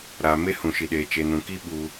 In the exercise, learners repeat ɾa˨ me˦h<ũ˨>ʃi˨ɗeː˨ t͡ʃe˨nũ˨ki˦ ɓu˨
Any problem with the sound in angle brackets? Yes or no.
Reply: no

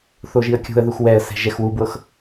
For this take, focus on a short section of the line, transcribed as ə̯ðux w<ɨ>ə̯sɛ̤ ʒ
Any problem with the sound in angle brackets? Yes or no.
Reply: yes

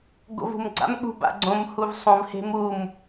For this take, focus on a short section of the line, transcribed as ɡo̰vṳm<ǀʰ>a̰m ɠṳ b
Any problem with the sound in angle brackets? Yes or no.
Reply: yes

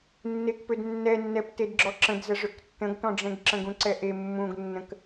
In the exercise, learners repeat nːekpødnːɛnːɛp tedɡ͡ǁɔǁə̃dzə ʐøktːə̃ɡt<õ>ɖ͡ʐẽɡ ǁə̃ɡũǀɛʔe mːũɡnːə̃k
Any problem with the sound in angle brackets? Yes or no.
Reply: yes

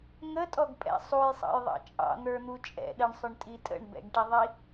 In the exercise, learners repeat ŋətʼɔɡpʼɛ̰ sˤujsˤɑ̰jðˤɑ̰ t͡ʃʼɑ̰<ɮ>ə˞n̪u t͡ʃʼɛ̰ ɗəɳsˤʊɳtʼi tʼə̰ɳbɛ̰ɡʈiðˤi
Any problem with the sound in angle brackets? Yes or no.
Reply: yes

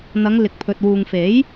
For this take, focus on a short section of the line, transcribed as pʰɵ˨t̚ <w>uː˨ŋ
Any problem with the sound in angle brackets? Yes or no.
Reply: no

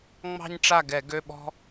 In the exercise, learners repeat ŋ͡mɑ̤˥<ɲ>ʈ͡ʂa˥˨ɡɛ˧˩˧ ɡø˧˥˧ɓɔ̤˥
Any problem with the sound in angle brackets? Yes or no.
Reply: no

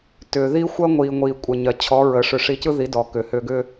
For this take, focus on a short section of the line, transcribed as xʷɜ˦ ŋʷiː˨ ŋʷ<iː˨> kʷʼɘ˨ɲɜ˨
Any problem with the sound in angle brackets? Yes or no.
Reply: no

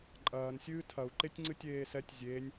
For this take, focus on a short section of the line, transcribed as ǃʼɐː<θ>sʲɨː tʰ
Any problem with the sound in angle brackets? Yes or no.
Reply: yes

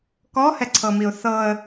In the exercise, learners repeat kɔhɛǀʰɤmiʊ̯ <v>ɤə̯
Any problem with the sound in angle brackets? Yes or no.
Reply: yes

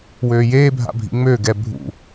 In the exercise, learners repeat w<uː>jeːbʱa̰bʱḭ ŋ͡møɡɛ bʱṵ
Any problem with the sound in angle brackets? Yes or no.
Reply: yes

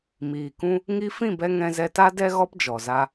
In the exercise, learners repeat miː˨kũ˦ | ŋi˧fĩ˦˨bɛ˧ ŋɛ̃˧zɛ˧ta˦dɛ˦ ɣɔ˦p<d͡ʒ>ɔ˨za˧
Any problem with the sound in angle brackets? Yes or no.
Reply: no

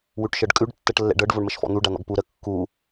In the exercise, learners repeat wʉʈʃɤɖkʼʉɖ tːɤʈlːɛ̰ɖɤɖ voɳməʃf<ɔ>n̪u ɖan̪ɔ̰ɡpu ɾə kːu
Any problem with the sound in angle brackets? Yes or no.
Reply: yes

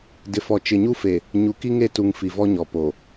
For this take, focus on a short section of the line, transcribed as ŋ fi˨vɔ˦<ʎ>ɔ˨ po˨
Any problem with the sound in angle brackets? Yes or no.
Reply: yes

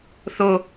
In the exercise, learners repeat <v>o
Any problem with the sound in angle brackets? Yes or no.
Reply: yes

